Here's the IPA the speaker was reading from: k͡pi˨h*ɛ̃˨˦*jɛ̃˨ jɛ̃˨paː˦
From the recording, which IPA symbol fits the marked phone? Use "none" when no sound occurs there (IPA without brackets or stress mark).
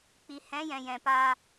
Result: ɛ̃˨˦